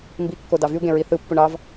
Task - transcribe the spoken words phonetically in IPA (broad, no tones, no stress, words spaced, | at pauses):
mbikːo dɑvyu̯ɡẽ ɹiθɯpːuɳ ɑv